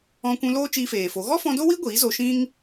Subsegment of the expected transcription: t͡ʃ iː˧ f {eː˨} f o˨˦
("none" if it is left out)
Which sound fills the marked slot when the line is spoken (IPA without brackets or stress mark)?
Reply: eː˨